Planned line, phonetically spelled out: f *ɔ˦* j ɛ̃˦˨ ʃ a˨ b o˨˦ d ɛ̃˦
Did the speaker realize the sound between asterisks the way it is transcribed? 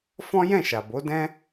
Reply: no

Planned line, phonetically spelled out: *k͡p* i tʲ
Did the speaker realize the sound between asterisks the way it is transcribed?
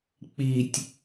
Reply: yes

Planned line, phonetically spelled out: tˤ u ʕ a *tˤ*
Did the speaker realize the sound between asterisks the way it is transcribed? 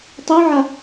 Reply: no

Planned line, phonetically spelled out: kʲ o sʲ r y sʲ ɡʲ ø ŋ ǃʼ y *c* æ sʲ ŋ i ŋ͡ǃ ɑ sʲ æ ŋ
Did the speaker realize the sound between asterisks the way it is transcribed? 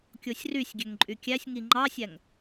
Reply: no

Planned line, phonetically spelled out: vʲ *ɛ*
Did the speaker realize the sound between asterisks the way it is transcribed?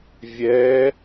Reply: yes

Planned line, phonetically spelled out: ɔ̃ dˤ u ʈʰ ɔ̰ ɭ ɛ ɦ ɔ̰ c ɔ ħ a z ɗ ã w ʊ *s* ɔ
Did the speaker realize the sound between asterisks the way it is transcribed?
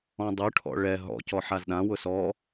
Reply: yes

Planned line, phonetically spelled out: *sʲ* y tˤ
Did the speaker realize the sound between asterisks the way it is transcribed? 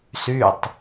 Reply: no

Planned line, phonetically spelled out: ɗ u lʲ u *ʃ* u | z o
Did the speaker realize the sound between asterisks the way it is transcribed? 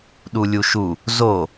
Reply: yes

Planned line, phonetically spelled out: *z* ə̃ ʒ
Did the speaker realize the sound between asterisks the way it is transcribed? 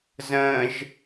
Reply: yes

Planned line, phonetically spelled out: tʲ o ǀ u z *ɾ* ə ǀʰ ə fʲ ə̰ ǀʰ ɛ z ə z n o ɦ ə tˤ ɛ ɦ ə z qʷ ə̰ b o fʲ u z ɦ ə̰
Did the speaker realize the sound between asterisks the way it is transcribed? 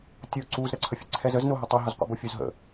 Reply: yes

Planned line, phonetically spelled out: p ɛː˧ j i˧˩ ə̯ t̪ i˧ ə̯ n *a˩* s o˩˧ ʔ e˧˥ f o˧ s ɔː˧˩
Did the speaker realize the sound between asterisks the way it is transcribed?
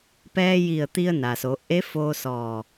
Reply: yes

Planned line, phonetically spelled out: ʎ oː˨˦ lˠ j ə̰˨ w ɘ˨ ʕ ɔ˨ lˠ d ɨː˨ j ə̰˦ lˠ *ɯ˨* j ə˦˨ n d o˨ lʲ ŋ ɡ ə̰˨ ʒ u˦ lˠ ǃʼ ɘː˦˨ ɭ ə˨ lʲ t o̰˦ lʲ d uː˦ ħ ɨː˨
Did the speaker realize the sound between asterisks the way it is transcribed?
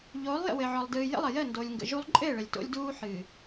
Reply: no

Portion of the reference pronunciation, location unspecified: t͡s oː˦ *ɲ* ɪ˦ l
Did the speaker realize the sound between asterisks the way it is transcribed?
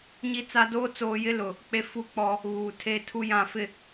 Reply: no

